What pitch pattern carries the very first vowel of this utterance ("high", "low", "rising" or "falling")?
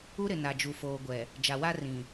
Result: high